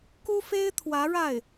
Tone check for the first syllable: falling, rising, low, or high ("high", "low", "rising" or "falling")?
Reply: high